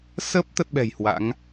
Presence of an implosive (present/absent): present